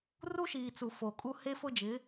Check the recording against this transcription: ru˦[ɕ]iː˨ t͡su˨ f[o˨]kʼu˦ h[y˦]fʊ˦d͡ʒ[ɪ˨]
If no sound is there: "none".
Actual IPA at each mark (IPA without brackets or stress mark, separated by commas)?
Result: ʃ, o˨, e˦, ɪ˨˦